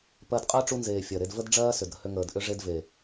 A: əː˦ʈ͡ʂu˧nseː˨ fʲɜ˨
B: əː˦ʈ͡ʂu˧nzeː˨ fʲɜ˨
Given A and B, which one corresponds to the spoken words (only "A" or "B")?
B